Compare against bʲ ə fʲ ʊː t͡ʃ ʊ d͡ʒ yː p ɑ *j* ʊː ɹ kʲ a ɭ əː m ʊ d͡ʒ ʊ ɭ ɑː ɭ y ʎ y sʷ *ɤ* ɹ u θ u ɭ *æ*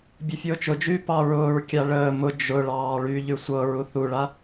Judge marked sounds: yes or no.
no, yes, no

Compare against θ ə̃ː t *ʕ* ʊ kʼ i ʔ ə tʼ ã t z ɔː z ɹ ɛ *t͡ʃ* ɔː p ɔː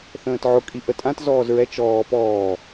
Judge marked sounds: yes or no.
yes, yes

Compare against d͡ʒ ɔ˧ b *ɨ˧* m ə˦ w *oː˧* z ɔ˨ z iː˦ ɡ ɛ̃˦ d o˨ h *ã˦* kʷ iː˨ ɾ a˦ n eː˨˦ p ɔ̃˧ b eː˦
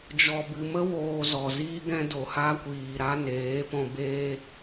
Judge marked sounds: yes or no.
yes, yes, no

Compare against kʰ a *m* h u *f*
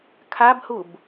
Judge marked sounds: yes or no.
no, no

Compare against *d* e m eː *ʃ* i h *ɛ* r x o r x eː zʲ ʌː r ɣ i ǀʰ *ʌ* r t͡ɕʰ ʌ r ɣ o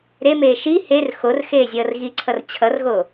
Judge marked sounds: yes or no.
no, yes, no, yes

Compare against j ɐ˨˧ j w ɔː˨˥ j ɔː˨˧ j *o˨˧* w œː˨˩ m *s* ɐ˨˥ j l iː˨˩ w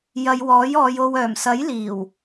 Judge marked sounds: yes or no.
no, yes

